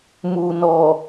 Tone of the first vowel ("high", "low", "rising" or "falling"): low